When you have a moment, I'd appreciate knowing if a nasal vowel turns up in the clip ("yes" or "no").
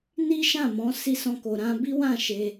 yes